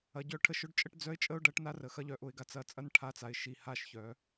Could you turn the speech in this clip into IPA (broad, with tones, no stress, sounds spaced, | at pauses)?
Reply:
ɐ˩ ɟ œ˧˩˧ ʈʰ ə˧˩˧ ʃ ʊ˥˨ ɖ t͡ʃʼ ə˦ ʈ d͡z œ˨˥ ɪ̯ t͡ʃʼ ə˦ ʊ̯ ɖ ɐ˨˥ ʈ n a˦ r ə˩ x ɐ˨˥ ʎ œ˩˧ ʔ ʊ˩˧ ɪ̯ ɡ a˩˧ t͡s ɐ˧˩˧ t͡sʼ ɐ˦ n ʈʰ a˨˥ t͡s a˩˧ ɪ̯ ʃ i˩ h a˧˩˧ ʃ ç œ˩˧